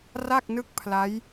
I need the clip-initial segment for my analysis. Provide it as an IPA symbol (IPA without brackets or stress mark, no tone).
r